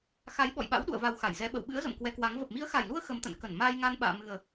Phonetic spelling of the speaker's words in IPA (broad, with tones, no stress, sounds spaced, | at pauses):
x a˨˦ j ɓ ɔ̰˧˨ j ɓ a̰˧˥ w ɗ ṵ˧˨ ə̯ v a˧ w x a˧˩ j z ɛ˧ ɓ ə̰˧˨ w ɓ ɨ̰˧˥ ə̯ z ə̰˧˨ m k w ɛ˨˦ k w a˨˦ ŋ v ə˨˩ p̚ m i˨˦ ə̯ x a˨˩ j l u˧ ə̯ x ə˨˦ m t̪ ə̰˧˨ n k ə˧˩ n m aː˧ j ŋ a˧ n ɓ a̰ː˧˨ m ɨ˨˩ ə̯